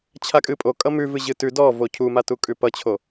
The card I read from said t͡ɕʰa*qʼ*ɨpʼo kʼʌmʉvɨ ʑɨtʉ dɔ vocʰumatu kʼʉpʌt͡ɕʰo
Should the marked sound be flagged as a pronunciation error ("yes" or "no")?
yes